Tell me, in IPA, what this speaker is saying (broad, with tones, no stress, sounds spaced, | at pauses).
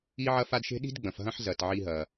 i˦ ʕ ɐ˦ f a˦ d ʃ e̤˥ ɗ i̤˥ d ɡ͡b ɐ̃˩ f ɦ ɐ̃˦ ħ z ɐ˩ t ʕ i˨ ɦ ɐ˩